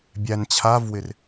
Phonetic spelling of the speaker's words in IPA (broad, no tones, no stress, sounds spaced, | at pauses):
bʲ æ n t͡ɕʰ a v w ɪ r